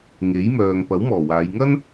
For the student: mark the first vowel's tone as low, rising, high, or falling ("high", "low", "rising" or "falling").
rising